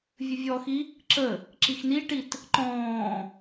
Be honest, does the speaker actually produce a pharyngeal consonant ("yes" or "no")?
no